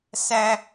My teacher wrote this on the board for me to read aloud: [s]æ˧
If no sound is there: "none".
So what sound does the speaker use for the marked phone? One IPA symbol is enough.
s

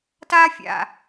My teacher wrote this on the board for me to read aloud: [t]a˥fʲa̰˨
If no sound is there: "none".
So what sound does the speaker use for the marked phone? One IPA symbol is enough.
t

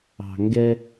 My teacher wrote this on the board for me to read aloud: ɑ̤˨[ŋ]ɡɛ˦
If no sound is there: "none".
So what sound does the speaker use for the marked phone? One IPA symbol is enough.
ŋ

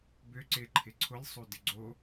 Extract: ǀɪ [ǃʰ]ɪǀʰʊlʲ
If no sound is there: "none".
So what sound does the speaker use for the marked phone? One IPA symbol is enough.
ǃʰ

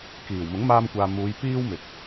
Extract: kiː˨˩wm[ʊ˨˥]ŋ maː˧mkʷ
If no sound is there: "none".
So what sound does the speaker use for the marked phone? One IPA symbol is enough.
ʊ˨˥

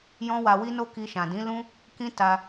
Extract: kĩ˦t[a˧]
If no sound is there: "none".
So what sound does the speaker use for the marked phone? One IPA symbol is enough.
a˧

